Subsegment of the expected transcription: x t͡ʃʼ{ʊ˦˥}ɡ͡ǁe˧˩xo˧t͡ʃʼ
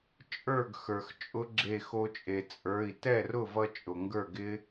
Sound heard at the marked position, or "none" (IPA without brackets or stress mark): ʊ˦˥